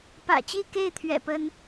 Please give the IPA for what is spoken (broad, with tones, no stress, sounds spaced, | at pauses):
p ä̰˨˩ t͡ɕ i˥˧ k e˥˩ ɪ̯ t̪ʰ ɥ ɛ̰˨˩ p ə˥ n